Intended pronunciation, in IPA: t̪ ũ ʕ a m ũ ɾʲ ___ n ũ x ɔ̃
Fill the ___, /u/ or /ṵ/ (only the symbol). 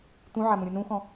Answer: u